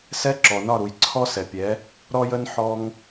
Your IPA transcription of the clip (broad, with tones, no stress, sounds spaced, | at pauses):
s ɛ˥ ǁ ɔ˩ n ɒ˥˩ ɾ u˩ j ǀʰ ɔ˥ s ɛ˩ pʲ ɛ˩˥ | ɾ ɔ˥ j ə˥ n ħ ɔ˧ ŋ